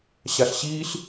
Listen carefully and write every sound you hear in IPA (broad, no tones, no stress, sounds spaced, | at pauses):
ɕ a ɬ ɕ iː ɬ